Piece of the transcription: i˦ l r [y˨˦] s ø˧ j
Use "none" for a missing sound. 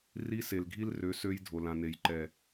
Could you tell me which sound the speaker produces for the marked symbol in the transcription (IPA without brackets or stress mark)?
ø˨˦